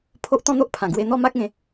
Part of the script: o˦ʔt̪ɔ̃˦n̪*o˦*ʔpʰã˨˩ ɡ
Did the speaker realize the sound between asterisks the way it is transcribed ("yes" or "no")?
yes